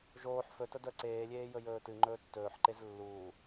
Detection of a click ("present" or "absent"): present